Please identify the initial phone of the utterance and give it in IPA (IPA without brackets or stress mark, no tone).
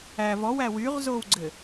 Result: æ